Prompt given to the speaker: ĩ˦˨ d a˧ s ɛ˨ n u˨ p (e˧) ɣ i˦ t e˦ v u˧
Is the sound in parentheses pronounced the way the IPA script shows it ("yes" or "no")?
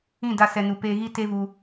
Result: yes